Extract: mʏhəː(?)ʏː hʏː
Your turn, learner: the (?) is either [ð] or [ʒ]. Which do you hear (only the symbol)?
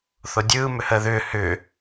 ð